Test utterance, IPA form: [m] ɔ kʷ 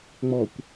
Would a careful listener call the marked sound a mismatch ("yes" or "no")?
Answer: yes